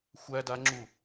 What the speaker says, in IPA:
xʷ æ d a ŋ͡ǁ u

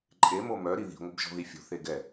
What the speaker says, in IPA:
ǃʼ e m o m œ ɾ i ð i̤ ŋʷ e b ʒ ɔ̤ ð i fʲ o̤ θ e ɡ ɛ

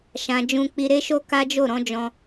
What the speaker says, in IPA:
ʃ ã˨ d͡ʒ ũ˧ k͡p i˧ ɾ e˧ ʃ o˧ k a˦ d͡ʒ o˦˨ ɾ ɔ̃˨˦ d͡ʒ ɔ̃˧

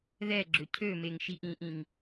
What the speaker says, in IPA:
ð ɛ ɡ͡ǁ ʏ cʰ ø m e ŋ ʃ i ʔ ĩ ʔ ĩ ŋ

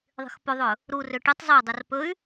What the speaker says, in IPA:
ðˤ i̤ x p o ðˤ ɵ | ɾ u r ø ʈ i tˤ zˤ ø dˤ o r p ɵ y̯

